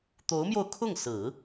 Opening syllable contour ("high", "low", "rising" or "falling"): rising